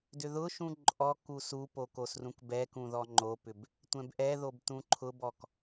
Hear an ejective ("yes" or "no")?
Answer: yes